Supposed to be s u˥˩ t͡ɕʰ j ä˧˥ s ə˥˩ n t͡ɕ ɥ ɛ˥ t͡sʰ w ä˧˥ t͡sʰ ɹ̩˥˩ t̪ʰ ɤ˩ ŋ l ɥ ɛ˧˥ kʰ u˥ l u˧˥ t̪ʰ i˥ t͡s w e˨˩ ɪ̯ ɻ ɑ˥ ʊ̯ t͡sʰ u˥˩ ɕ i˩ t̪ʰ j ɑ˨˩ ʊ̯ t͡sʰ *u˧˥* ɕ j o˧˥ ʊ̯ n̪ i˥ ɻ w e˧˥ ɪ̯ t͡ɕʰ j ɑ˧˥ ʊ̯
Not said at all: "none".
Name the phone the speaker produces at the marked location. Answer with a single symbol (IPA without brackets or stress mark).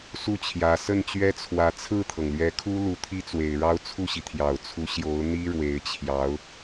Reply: u˧˥